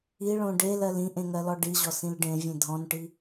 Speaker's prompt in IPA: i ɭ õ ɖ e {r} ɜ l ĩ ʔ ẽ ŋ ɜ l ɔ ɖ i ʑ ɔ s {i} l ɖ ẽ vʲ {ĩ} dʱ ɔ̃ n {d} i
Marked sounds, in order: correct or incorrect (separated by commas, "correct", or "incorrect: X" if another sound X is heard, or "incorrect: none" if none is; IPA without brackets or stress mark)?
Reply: incorrect: l, incorrect: ĩ, incorrect: ẽ, incorrect: ʈ